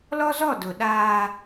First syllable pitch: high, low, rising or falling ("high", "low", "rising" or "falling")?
high